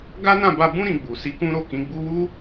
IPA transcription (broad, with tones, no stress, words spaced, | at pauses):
ɡa˦nã˦˨ba˧bũ˦ ɾĩ˧ɡ͡bu˨ si˨˦ kũ˦ɾo˦˨kĩ˨˦ɡ͡bu˦ wu˦